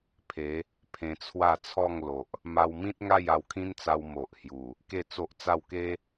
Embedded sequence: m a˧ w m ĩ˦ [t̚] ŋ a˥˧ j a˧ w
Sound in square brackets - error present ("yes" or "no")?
no